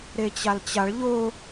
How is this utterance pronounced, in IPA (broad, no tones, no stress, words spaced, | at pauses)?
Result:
ɾet͡ɕalt͡ɕaɭ ʎʊ